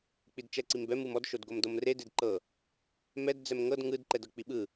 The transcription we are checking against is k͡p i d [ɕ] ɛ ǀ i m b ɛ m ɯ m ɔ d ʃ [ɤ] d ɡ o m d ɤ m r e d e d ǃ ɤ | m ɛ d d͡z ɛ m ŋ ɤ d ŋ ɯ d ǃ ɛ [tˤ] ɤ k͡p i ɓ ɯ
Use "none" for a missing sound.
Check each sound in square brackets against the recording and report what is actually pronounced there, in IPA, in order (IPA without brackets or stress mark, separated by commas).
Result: t͡ʃ, o, d